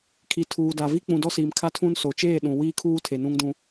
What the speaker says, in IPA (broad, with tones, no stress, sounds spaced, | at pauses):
kʰ i˨ tʰ uː˨ d a˨ v i˦ k͡p ũ˨ d ɔ˦ s iː˨ m kʰ a˦ tʰ ũ˦ n s o˨ t͡ʃ eː˦˨ ɗ ũ˨ w iː˦ kʰ uː˦ tʰ e˨ n ũ˦ ŋ d ũ˦